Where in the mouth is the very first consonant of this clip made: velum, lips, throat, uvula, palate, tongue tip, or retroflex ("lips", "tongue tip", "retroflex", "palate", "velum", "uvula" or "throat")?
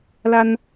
tongue tip